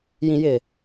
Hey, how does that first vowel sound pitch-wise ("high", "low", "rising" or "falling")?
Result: low